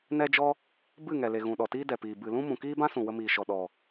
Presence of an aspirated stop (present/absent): absent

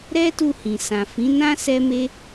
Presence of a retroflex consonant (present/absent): absent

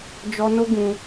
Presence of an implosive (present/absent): absent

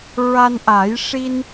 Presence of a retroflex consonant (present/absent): present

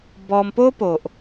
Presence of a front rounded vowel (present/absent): absent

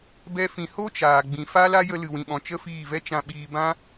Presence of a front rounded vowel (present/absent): absent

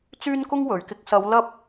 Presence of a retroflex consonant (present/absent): absent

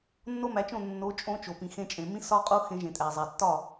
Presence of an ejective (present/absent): present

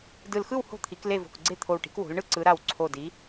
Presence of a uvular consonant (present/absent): absent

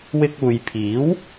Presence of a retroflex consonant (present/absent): absent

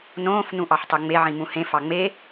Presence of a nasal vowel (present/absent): present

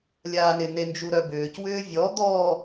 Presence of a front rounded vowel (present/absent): present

